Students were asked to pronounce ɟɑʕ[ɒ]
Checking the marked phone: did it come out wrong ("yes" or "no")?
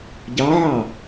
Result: yes